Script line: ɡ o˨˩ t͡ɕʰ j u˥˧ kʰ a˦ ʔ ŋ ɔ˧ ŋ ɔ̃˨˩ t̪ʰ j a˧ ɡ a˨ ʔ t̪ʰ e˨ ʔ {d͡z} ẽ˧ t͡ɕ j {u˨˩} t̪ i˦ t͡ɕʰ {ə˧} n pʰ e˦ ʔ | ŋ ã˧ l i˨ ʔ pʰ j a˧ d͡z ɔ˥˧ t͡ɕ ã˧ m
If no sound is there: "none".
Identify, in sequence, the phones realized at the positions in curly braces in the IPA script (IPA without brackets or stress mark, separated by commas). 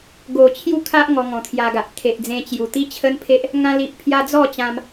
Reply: d͡z, u˨˩, ə˦